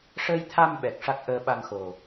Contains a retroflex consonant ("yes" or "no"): yes